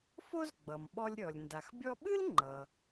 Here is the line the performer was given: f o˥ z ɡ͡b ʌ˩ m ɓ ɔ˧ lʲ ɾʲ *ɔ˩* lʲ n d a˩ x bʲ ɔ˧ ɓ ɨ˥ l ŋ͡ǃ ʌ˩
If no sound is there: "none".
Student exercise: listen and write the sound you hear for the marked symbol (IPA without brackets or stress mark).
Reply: ɔ˩